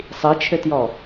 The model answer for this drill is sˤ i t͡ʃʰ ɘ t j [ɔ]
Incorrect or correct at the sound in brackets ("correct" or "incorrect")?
correct